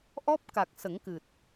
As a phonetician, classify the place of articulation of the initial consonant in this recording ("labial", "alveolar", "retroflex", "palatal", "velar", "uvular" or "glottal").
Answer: glottal